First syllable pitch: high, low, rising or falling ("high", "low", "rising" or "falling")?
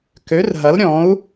rising